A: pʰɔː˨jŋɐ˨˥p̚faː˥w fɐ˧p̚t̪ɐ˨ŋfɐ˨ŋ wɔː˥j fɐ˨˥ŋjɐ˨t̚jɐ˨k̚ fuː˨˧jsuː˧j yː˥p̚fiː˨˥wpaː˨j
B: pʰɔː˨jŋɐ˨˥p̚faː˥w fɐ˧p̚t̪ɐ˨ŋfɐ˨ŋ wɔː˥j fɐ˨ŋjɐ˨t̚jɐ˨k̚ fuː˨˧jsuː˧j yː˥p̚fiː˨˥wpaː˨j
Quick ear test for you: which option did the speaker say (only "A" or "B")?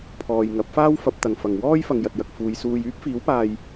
B